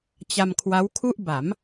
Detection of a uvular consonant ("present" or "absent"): absent